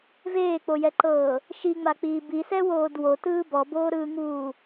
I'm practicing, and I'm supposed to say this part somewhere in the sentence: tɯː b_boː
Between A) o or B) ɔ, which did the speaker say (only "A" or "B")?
B